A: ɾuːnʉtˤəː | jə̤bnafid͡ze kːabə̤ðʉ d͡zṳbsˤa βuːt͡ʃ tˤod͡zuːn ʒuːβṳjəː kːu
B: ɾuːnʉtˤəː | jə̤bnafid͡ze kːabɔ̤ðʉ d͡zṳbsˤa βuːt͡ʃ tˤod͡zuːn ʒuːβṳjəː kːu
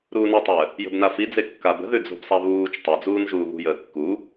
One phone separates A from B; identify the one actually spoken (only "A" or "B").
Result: A